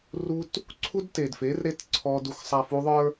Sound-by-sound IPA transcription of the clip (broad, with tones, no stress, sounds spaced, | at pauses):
r u˦ t | ǀʰ u˦ d t e˨ d f e˨˦ r ɾ e˦ t ǀʰ ɔ˦ d u˦ x sˤ a˦ f u˦ ðˤ ə˞˦